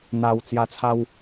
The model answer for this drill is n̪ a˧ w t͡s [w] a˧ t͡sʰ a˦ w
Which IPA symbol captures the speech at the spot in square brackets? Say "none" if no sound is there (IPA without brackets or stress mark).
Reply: j